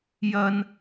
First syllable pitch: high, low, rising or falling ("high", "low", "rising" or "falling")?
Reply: low